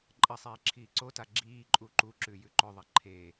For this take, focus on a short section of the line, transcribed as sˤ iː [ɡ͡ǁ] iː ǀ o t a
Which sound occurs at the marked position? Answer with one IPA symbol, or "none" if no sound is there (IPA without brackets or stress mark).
ǁʰ